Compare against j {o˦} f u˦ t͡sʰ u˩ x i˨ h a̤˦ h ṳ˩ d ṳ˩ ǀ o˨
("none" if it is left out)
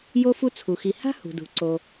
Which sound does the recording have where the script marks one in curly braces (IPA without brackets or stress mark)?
o˦